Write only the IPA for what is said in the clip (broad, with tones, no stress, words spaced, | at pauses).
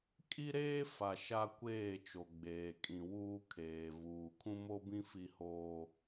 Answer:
kʼi˦ɾeː˦ fa˨ ʃa˦kʷeː˦˨t͡ʃo˨ ɡ͡beː˨kʼĩ˨wuː˦kʰeː˨ vuː˨ kʰũ˦mo˦bĩ˦ fi˦hoː˦